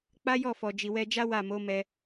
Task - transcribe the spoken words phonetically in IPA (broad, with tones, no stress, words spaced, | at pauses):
k͡pa˦jɔ˦˨fɔ˨ d͡ʒi˨wɛ˧d͡ʒa˦ wa˦˨mo˨˦ mɛ˧